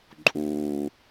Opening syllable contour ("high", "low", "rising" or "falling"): low